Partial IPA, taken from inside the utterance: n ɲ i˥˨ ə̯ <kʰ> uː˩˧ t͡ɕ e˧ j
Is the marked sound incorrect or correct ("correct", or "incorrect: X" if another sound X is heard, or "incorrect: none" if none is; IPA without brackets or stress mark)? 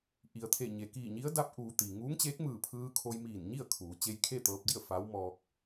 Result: correct